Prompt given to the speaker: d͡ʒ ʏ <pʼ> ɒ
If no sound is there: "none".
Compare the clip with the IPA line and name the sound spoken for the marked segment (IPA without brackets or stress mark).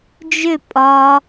pʼ